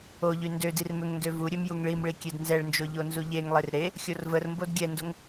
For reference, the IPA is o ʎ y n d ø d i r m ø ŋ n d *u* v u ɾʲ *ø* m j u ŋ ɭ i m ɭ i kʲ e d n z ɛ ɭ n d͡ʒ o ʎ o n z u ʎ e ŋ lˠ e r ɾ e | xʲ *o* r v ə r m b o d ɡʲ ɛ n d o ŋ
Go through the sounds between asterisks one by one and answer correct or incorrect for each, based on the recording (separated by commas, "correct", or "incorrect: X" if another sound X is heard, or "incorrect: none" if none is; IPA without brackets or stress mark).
incorrect: ø, correct, correct